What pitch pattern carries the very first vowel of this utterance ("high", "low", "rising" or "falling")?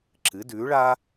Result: rising